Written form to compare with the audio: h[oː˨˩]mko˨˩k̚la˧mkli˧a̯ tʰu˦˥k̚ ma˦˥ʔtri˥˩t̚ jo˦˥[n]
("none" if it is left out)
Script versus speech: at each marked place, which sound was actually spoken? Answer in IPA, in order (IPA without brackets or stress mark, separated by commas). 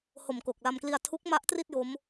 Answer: o˨˩, m